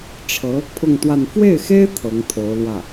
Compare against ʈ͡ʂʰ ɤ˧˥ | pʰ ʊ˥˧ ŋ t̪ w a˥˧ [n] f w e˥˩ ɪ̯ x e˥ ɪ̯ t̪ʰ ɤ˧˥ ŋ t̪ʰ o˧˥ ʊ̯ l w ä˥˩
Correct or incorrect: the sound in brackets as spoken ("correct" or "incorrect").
correct